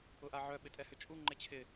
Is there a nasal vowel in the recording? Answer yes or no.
no